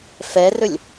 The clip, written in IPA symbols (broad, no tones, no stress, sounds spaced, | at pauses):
f ɛ r ɵ lʲ